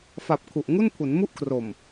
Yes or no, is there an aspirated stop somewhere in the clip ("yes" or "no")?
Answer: yes